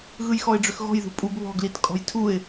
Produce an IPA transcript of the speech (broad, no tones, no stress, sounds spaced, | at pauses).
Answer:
ɣ ɯ j x ɔ ɪ̯ ɖ͡ʐ ʏ x ɣ ɔ̤ j ð ṳ pʼ u b β ɔ̤ ɡ l i t kʼ ɔ̤ j tʰ u ɪ̯